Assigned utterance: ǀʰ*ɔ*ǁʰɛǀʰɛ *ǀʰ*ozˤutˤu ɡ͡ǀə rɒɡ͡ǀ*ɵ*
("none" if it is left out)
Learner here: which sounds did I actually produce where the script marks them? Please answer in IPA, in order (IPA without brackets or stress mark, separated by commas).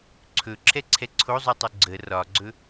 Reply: ɵ, ǀʰ, ɵ